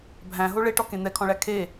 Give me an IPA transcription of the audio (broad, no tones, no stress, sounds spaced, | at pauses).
bʱ æ̃ ɦ o ɭ e ʈ ɔ k ẽ n̪ ɛ kʰ ɔ̃ ɭ æ kʰ e